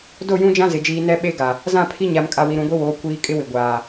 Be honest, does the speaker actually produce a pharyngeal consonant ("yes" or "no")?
no